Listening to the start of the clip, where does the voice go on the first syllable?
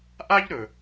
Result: high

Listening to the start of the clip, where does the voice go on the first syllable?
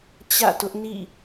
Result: falling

